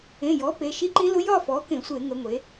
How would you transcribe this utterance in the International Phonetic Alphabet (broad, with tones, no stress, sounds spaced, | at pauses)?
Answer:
ẽ˩˧˩ j ɔ˩˥ p e˩˧˩ ʃ i˦˥ ǃ ĩ˦˥ l ʊ˦˥ j ɒ˥˧ f ɔ˩˥ k ẽ˧˩˧ sʷ e˧˩˧ ŋ ə˩˧ ŋʷ e˩˧